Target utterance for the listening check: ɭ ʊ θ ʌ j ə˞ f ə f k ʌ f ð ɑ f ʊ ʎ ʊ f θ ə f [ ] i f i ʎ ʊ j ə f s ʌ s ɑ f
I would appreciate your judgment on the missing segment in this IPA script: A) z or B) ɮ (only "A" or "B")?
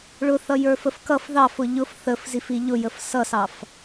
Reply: A